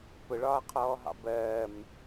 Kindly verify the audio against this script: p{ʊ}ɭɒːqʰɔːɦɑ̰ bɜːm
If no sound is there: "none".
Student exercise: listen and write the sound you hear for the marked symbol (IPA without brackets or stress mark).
ʊ